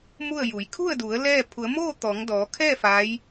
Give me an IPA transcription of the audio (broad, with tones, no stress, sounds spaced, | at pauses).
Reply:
m u˥˨ ə̯ j u˩˧ j kʰ u˥˨ ə̯ d u˩˧ ə̯ l ɛː˥˨ pʰ u˩˧ ə̯ m oː˥˨ t̪ ɔː˩˧ ŋ d ɔː˩˧ kʰ ɛː˥˨ f a˧˥ j